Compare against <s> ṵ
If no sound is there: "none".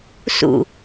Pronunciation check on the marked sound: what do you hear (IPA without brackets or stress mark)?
s